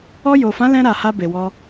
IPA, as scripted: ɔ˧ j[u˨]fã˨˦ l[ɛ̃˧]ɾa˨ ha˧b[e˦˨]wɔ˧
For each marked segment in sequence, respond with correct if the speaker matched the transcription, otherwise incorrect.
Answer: incorrect: o˨, correct, incorrect: e˨

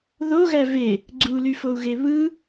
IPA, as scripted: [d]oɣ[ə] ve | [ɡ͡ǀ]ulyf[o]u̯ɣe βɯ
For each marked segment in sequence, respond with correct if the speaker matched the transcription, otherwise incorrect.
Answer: incorrect: ð, incorrect: æ, correct, correct

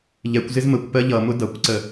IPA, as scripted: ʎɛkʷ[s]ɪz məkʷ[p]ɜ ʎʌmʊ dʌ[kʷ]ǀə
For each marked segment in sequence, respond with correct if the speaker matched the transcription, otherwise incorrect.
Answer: incorrect: z, correct, correct

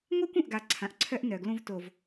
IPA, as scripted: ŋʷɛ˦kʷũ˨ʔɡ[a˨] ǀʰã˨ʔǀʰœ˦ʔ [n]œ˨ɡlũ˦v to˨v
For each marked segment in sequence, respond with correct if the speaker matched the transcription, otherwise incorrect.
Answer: correct, correct

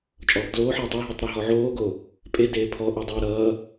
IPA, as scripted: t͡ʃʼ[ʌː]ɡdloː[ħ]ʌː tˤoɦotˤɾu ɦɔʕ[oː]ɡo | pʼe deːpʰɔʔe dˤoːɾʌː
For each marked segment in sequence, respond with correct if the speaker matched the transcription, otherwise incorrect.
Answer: incorrect: ɔː, correct, correct

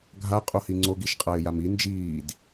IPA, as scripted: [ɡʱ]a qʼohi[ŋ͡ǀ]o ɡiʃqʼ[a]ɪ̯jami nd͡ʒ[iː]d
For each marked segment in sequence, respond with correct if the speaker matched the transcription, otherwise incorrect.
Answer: correct, correct, correct, correct

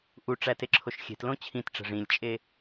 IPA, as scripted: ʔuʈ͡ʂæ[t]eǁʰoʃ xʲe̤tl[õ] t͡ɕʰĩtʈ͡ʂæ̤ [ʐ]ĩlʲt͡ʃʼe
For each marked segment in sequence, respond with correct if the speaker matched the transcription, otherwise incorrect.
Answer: correct, correct, correct

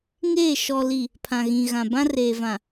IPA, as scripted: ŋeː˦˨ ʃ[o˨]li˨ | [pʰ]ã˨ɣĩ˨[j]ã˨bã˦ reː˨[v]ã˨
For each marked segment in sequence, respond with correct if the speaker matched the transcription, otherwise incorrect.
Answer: incorrect: ɔ˨, correct, incorrect: ɣ, correct

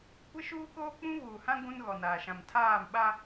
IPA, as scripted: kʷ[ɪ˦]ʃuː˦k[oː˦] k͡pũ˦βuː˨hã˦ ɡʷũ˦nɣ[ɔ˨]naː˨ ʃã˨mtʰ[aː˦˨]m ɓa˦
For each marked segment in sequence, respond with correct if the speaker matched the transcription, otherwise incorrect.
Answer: correct, correct, correct, correct

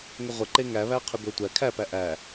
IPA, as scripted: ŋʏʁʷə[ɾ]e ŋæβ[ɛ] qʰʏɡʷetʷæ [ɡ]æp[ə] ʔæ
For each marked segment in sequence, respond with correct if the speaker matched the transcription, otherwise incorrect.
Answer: incorrect: ǃ, incorrect: æ, incorrect: kʰ, incorrect: æ

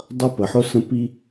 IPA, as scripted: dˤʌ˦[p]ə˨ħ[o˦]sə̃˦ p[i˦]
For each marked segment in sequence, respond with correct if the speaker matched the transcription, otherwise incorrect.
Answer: correct, correct, correct

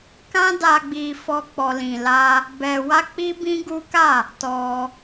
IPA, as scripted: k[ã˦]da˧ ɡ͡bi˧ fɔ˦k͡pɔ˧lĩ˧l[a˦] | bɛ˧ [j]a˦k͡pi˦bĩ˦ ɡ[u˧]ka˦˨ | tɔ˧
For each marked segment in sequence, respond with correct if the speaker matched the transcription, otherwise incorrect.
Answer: correct, correct, incorrect: w, incorrect: u˦

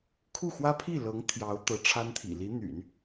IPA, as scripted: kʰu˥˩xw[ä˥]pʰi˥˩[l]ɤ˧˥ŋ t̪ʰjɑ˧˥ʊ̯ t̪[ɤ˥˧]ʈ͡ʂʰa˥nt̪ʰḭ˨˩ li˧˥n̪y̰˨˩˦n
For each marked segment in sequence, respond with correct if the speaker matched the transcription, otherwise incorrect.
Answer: correct, correct, incorrect: ɤ˧˥

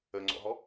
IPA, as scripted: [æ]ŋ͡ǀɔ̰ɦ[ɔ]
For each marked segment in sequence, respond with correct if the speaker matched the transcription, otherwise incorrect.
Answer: incorrect: ə, correct

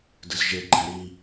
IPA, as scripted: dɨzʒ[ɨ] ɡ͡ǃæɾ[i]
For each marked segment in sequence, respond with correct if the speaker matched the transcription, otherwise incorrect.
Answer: incorrect: e, correct

